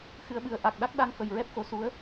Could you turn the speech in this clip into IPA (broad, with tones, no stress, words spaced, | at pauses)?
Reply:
xɨ˧˥ə̯ɓɨ˧˥ə̯ ʔa˨˩k̚ɗa˦˥k̚ɗa˧ŋfə˨˩j ɹɛ˦˥p̚xo˧˥su˧˥ə̯